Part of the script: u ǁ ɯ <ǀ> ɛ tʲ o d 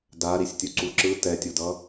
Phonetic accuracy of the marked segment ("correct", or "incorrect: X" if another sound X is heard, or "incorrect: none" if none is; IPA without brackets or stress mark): incorrect: t